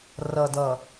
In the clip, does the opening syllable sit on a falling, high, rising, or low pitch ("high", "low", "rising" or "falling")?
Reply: low